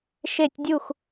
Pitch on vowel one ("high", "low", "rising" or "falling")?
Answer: falling